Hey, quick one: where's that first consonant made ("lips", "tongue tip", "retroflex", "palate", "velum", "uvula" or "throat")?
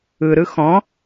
tongue tip